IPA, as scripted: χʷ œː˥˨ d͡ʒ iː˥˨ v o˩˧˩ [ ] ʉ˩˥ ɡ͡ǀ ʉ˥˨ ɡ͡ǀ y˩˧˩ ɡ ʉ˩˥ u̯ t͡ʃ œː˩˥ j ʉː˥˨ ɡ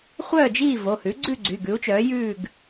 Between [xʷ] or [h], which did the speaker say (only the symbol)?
h